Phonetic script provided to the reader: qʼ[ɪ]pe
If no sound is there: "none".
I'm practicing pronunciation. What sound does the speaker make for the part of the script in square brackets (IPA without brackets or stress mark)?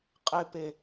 ɪ